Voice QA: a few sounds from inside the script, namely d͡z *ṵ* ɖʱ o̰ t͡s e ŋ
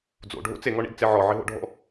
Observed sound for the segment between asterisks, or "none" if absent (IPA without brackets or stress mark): o̰